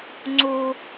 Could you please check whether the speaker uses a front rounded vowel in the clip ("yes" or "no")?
no